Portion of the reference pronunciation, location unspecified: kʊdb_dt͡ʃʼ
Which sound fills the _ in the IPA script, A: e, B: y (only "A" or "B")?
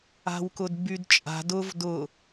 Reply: B